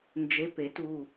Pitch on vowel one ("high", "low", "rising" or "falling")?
rising